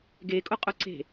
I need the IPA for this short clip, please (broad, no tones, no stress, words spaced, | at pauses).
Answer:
ɡekʼʊqʼʊ ǀe̤